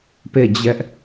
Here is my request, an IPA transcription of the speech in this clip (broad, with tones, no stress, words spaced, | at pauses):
pe˦˨d͡ʑɛ˦ʔ